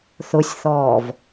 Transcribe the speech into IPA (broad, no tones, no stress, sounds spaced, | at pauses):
θ ʊ sʲ θ ɔː v